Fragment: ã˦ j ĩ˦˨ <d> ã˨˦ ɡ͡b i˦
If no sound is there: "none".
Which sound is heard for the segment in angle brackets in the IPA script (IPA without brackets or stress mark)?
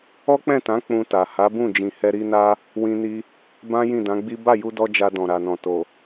d